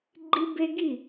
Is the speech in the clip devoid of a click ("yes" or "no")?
no